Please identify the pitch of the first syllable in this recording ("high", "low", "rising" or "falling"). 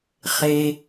low